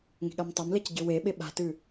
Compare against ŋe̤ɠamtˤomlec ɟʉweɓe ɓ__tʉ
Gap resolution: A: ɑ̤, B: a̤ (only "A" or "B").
B